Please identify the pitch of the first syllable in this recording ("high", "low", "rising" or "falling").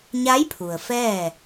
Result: rising